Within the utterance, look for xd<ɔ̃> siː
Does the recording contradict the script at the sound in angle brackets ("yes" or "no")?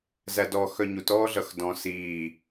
no